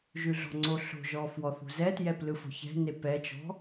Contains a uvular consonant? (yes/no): no